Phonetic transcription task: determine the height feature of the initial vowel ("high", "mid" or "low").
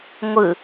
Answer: high